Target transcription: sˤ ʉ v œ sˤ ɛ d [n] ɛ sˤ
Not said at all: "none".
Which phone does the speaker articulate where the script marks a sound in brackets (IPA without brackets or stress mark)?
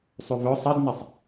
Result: n